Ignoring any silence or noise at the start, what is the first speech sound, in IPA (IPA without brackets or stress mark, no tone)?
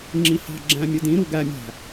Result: ŋ͡ǁ